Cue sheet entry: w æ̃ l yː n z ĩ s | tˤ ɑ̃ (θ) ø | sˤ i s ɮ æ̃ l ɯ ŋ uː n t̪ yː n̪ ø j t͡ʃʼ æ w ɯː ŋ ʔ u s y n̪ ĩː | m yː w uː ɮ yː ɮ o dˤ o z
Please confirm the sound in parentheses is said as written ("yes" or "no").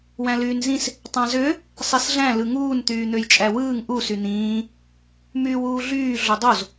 no